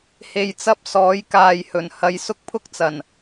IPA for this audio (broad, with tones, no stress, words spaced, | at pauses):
he˨jt͡sɐ˧p̚ sɔː˨˥jkaː˨jhɵ˨˩n hɐ˨˧jsʊ˥k̚pʰʊ˥k̚t͡sɐ˨˩n